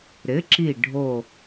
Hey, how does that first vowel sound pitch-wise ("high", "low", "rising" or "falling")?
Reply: rising